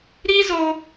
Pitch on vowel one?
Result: high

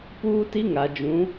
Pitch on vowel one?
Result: high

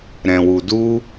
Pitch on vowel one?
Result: low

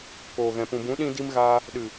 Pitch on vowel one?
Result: low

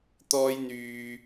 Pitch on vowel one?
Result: high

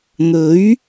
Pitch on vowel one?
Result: rising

